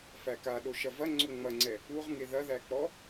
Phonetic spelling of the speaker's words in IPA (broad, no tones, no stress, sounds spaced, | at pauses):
f æ k a ɗ o ʃ ɐ v ɐ ŋ͡ǀ o ŋ͡m ɐ ŋ͡ǀ ɛ | u ʁ ŋ e ð ɐ ð æ k͡p ɔ